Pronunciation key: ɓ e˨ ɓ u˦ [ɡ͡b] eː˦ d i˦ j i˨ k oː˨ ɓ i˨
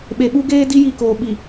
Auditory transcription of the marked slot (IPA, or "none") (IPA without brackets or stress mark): ɡ